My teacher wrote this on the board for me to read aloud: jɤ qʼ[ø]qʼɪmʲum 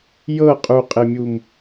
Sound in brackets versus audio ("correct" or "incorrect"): incorrect